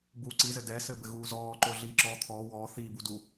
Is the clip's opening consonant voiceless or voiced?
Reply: voiced